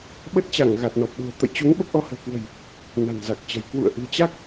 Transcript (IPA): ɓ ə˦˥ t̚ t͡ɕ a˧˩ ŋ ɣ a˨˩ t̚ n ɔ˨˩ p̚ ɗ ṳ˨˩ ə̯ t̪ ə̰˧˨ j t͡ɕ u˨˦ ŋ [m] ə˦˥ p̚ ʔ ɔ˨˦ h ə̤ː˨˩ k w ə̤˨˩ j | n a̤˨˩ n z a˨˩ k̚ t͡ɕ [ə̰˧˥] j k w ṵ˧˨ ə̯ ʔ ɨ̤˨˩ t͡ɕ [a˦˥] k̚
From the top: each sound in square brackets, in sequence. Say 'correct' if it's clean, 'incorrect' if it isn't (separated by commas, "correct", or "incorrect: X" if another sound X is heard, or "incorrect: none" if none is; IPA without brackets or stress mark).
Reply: incorrect: ɓ, incorrect: ə̤˨˩, correct